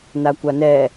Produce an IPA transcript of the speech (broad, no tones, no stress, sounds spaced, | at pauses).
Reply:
n a kʷ a n ɛ